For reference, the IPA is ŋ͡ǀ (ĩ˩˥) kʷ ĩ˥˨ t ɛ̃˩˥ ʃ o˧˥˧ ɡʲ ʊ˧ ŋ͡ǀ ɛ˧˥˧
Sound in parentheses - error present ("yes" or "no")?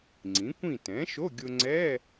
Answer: no